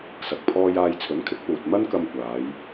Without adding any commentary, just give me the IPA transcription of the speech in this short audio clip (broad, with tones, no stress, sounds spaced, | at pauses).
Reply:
s ɐ˨ k̚ pʰ ɔː˧ j aː˧ j t͡sʰ ɵ˨˥ n kʰ ɪ˨˥ k̚ p uː˨ t̚ m ɐ˥ n k ɐ˧ m kʷ aː˨˧ j